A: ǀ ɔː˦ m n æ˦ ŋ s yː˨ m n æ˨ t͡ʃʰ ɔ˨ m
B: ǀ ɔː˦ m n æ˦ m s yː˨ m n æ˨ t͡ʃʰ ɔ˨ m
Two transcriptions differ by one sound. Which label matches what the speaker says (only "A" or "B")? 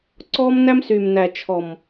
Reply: B